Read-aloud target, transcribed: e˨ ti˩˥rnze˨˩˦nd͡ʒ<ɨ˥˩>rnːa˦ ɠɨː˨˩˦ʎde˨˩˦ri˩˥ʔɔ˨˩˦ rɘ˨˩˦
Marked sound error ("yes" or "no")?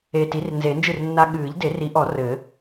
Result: no